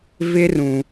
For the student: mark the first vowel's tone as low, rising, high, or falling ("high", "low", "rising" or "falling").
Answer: high